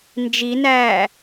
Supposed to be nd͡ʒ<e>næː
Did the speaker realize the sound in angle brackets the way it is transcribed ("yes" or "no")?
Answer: no